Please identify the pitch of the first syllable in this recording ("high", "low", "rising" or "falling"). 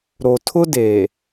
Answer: low